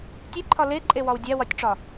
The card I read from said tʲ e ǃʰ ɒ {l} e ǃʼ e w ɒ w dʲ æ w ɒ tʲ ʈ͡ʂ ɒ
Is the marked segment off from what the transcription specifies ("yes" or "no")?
no